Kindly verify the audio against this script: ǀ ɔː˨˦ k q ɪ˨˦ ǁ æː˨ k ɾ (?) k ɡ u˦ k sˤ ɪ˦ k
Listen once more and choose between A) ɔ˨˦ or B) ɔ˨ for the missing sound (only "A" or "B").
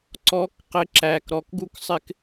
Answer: B